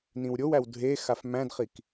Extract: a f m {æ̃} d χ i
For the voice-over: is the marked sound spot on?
yes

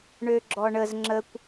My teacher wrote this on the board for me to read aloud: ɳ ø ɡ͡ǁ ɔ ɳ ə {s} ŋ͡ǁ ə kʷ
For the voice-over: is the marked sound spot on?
no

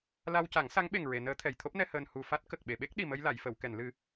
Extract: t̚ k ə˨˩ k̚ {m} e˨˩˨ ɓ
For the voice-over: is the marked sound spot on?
no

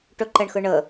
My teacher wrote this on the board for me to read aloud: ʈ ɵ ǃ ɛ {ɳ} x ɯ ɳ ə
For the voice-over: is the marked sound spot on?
yes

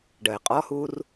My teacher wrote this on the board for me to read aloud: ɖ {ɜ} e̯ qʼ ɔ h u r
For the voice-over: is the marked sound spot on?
yes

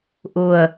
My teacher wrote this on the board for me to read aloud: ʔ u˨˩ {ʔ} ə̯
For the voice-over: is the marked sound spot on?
no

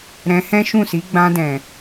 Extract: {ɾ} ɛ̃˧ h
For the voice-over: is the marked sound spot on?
yes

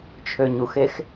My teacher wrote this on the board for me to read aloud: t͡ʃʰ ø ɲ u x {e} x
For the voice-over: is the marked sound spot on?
yes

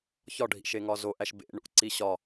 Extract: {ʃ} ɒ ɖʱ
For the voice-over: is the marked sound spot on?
no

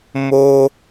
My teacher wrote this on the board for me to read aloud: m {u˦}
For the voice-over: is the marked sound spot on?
no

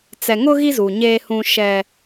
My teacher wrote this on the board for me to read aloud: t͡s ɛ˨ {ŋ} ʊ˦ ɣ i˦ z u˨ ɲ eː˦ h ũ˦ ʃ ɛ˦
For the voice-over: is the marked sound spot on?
yes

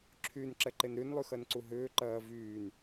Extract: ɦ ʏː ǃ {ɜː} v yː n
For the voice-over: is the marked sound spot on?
yes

